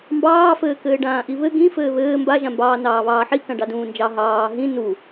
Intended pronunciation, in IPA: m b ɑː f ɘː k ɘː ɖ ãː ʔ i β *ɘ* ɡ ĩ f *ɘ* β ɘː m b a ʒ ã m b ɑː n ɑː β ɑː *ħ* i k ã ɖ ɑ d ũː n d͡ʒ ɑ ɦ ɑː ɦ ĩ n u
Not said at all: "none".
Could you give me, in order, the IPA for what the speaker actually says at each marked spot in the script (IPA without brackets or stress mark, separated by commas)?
ɘ, ɘː, ħ